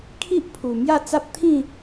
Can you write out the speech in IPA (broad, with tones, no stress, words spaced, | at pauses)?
kʰi˦ʔ pʰu˨˩ mja˥˧t͡sa˦p̚ t̪ʰĩ˥˧